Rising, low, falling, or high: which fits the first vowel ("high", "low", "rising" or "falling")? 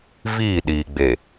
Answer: falling